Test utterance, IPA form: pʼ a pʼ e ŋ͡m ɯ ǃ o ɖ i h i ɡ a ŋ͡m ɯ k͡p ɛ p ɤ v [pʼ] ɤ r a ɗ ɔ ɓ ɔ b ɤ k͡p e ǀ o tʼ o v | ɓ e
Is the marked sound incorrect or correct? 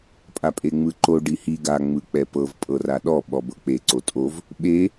correct